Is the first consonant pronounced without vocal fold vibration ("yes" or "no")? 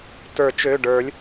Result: yes